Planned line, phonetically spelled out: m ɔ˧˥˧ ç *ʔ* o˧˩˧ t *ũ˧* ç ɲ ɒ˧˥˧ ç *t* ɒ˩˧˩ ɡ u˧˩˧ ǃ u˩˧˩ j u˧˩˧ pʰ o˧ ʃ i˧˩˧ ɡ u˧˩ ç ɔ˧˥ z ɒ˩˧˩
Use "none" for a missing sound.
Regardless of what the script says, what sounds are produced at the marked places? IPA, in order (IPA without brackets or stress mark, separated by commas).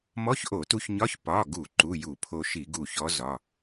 ʔ, u˧, p